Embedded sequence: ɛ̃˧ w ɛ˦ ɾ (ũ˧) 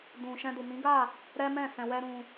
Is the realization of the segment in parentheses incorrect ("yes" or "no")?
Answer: no